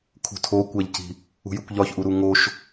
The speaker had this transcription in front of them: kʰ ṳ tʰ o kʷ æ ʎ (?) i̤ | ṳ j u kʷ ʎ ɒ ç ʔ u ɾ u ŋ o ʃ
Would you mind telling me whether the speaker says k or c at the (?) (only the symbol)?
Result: c